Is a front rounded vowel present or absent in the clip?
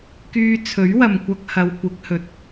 present